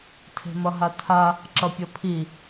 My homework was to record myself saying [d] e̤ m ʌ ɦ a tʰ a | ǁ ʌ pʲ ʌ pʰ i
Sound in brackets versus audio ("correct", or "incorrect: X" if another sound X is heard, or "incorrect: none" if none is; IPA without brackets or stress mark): incorrect: tʰ